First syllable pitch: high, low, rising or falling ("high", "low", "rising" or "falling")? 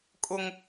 high